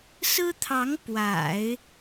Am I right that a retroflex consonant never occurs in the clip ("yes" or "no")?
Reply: yes